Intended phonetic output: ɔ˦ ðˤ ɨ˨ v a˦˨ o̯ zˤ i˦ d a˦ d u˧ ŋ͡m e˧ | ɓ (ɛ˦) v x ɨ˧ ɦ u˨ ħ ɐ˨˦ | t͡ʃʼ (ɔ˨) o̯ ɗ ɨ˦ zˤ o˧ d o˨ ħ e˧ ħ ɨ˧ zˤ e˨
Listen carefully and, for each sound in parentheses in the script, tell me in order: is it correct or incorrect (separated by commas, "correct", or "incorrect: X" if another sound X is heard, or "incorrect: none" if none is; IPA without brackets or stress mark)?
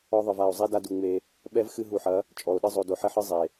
correct, correct